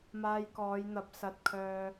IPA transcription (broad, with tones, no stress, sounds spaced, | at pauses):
m aː˧ j k ɔː˨˧ j n̪ ɐ˨˥ p̚ s ɐ˧ t̚ kʰ œː˧